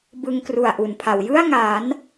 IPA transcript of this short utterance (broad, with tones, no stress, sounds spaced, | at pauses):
b ɯ˧ ŋ k r u˨˩ a̯ ʔ u˨˩ n pʰ a˩˦ w j ɯ˥˩ a̯ ŋ aː˩˦ n